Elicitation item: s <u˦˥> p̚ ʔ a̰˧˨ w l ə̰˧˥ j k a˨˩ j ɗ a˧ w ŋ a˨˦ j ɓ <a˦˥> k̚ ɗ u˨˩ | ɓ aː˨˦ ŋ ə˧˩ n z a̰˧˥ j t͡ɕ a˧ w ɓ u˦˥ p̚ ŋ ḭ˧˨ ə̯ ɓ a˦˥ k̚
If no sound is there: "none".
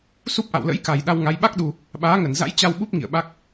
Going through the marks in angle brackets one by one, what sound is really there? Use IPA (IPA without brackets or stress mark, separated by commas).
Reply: u˦˥, a˦˥